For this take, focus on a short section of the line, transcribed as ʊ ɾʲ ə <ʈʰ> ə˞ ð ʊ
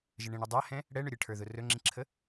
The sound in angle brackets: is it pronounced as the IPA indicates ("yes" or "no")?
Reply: yes